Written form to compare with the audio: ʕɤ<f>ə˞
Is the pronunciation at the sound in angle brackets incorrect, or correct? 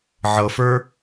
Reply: correct